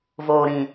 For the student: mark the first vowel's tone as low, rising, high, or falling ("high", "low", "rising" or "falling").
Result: low